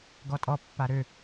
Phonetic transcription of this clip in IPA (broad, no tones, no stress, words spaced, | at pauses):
ɡɔtʼɔ pːaɾø